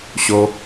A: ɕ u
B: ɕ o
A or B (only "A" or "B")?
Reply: B